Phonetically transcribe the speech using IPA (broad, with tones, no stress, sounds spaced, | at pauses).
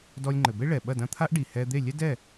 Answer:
d ɔ˧ lʲ ŋ͡ǃ ɘ˩ b e˥ ɭ ɛ˩ ɓ ɐ˥˩ d ɐ̃˥˩ t̪ʰ a˥ ʔ ɖ i˩ h ɛ˧ d̪ e˥˩ lʲ ɛ˥ d ɛ˥˩